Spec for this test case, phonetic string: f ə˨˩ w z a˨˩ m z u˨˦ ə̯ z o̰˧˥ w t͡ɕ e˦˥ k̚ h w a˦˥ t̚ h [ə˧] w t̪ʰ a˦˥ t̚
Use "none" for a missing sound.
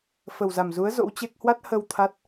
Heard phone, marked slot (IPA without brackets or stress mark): ə˧